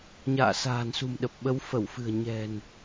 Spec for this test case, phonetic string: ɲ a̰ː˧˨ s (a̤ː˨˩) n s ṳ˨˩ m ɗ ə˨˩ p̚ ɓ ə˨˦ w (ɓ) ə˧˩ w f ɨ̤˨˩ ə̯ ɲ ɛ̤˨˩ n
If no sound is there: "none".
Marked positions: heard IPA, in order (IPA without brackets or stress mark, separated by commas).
a̤ː˨˩, f